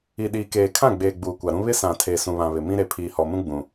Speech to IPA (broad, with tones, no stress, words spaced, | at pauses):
i˨ ɗiː˨keː˨kʰã˦˨ɡ͡beː˨ ɡ͡buː˨kʷa˨ɾũ˦ βɪ˦sã˨tʰe˨ sũ˨βã˨βɪ˨ mĩ˦ɾe˨ pʰiː˨hɔ˨mũ˦ ɡ͡bũ˨